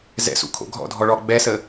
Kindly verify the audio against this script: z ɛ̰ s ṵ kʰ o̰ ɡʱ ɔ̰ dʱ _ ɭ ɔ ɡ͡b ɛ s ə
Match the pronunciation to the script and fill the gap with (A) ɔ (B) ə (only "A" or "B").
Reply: A